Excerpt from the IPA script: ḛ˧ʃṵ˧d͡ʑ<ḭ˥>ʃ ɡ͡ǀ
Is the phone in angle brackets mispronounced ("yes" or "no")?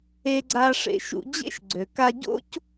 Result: yes